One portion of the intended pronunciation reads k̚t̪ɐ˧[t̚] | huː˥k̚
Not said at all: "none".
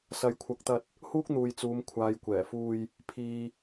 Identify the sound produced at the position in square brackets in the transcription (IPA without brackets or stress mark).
t̚